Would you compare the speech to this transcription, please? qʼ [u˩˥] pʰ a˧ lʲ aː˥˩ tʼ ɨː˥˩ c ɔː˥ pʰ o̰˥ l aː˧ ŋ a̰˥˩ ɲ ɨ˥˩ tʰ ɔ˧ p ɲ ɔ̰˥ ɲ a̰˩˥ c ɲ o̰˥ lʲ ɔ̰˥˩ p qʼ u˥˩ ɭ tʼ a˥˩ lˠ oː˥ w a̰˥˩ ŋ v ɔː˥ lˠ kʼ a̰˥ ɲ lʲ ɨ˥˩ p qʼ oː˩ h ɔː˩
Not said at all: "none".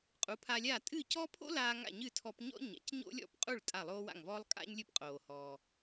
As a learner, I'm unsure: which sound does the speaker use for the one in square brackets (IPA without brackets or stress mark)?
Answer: u˩˥